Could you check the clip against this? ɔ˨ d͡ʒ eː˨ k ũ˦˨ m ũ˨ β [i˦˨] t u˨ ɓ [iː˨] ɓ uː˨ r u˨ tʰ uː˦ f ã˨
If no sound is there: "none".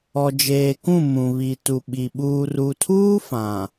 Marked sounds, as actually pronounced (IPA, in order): i˨, i˨

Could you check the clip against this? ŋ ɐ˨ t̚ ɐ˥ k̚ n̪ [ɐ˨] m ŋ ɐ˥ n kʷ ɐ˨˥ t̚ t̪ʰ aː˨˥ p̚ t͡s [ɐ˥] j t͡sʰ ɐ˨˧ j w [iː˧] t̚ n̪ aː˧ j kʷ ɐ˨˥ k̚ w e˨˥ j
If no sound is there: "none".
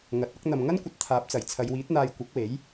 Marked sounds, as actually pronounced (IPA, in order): ɐ˨, ɐ˨˩, iː˨˥

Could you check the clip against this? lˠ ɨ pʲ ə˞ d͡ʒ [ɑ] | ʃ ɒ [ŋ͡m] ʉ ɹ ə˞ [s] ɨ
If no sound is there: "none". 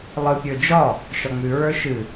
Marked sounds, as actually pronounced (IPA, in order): ɒ, ŋ͡m, ʃ

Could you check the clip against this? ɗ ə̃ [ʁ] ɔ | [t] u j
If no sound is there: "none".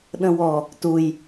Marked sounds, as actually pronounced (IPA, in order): w, t

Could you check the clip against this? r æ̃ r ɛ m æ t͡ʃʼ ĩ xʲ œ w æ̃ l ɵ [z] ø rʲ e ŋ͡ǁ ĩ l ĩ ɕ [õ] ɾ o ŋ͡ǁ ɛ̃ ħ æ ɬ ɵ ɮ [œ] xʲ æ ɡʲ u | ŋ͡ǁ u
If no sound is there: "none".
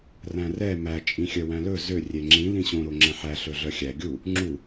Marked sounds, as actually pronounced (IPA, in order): z, õ, œ

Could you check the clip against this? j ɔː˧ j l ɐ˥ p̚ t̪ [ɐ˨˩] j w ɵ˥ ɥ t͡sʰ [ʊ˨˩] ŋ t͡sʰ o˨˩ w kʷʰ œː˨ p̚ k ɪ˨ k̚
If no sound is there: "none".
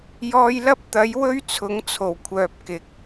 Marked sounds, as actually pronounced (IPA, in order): ɐ˨˥, ʊ˨˥

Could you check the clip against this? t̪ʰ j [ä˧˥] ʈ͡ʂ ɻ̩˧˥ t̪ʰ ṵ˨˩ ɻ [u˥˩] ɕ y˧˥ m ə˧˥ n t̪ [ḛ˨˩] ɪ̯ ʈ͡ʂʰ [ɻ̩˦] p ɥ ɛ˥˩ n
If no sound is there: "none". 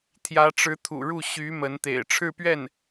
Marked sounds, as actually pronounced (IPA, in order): ä˧˥, u˥˩, ḛ˨˩, ɻ̩˥˧

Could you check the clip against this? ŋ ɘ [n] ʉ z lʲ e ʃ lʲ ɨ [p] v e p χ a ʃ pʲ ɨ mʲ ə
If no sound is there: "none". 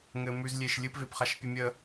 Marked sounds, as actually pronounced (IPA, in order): m, p

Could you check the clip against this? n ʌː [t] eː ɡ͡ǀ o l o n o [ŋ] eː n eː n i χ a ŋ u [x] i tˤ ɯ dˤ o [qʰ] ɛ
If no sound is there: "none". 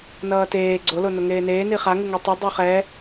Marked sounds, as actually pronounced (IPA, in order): t, ŋ, ŋ, χ

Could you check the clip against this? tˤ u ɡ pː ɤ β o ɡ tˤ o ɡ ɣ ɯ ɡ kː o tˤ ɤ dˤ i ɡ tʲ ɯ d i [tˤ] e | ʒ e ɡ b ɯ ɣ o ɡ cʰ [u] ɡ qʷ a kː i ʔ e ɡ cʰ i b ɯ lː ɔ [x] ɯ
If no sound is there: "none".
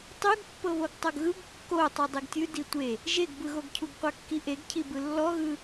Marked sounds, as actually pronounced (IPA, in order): tʷ, u, ɣ

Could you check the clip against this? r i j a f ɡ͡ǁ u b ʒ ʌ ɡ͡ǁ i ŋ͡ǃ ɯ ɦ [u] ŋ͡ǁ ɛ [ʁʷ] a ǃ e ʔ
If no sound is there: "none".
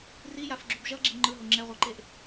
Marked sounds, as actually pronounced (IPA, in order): o, ʁʷ

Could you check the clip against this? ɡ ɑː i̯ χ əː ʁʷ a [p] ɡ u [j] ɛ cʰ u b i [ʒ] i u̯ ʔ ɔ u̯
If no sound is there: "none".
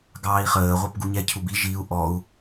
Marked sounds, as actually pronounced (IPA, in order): p, ɲ, ʒ

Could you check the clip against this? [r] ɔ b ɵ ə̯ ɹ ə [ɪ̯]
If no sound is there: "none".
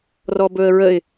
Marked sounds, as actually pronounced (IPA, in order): r, ɪ̯

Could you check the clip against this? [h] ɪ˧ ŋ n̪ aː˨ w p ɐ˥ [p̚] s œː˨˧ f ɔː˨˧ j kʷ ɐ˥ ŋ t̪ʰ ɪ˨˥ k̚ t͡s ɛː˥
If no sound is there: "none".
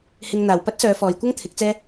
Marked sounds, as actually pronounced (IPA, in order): h, t̚

